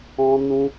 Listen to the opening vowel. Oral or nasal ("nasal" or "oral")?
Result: nasal